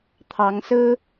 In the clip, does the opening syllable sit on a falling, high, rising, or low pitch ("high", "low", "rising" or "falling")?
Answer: rising